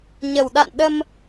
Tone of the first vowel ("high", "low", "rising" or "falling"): low